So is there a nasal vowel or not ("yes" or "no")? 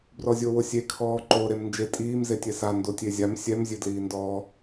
no